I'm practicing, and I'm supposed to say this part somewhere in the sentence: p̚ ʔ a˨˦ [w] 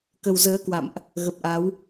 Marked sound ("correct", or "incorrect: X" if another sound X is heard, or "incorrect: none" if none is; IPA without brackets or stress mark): correct